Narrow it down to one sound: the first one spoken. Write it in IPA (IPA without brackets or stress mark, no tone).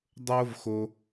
dˤ